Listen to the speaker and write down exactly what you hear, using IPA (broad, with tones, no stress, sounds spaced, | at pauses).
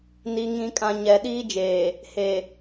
n i˨ ŋ ĩ˨ kʼ ã˨ ɲ ɛ˨ ɗ iː˦ d͡ʒ eː˨ | h e˨